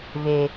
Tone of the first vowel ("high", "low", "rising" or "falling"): low